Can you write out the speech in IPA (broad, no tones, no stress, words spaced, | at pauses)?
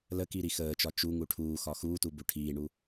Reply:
ləkiɾi xəːt͡ʃɒ t͡ʃuŋu ʈʰuːxɒ xuːtubu ʈʰiːɳu